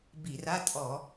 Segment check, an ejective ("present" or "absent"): present